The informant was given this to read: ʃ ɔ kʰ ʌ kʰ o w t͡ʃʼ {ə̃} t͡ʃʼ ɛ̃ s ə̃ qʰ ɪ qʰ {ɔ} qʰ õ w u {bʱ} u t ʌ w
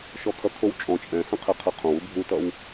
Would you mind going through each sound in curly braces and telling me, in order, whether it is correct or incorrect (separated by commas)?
incorrect, incorrect, correct